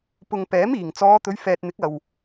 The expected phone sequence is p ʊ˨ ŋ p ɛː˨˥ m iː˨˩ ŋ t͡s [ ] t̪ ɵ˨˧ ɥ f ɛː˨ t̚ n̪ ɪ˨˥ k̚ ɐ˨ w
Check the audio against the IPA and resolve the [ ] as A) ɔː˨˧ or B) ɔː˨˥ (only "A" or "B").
A